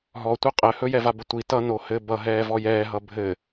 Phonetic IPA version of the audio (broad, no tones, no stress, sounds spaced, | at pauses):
ɦ ɔ tʷ ʌ qʼ ɘ h ɵ j ɛ v a b ə tʷ i t ʌ n o h ɘ b ʌ ɦ ɛː v ɔ j ɛː ɦ ʌ bʱ ɘ